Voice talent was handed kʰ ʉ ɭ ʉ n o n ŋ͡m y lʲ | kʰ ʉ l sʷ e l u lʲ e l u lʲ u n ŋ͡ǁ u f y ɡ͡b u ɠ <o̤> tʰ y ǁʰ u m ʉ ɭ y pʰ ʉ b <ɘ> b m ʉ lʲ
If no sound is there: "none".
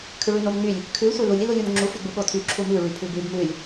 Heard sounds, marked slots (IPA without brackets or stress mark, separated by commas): o, ʉ